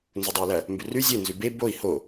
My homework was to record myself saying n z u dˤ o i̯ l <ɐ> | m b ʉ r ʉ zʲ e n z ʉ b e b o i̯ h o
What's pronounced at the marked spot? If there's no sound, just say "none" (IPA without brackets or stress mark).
ɐ